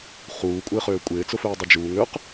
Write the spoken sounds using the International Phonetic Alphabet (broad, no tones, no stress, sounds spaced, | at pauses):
χ uː kʷʼ ɪː χ øː kʷʼ ɪː t͡s ʊ f øː dˤ œ d͡ʒ uː ŋ ø q